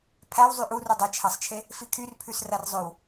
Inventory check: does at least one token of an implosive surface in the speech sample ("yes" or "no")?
no